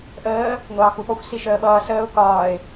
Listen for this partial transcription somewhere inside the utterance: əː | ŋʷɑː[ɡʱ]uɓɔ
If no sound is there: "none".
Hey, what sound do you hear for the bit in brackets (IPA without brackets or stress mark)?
x